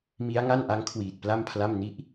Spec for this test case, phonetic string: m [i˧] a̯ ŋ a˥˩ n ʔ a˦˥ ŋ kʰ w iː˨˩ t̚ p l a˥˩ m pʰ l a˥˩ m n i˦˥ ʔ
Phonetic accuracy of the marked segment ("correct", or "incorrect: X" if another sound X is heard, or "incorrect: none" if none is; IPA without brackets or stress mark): incorrect: i˦˥